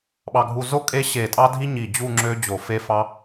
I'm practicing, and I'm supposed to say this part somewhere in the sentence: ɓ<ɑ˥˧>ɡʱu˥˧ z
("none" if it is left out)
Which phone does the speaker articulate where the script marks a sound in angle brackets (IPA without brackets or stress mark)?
ɑ˥˧